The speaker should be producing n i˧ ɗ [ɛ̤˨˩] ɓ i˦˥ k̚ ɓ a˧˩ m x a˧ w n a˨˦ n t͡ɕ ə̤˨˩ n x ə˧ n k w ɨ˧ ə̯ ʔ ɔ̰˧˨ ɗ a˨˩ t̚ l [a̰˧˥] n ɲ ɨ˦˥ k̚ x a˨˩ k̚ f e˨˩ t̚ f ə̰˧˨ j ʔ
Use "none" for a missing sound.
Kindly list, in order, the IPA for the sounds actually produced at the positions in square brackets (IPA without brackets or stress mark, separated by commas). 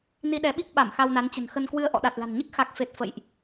ɛ˨˦, a̤˨˩